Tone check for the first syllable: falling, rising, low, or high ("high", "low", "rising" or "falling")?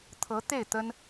rising